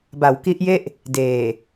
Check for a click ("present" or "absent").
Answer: absent